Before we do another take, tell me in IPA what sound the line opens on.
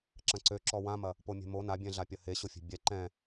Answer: ǁ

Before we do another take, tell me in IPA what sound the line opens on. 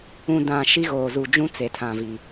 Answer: ũ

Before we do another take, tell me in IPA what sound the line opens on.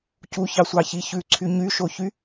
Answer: c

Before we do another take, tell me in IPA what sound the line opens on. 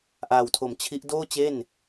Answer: ʔ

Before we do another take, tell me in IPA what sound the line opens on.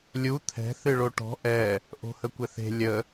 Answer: lʲ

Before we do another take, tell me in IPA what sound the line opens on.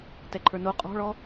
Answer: t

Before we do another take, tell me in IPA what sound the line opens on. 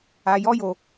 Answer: a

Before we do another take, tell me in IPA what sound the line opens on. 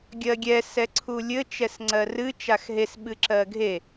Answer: ɡʲ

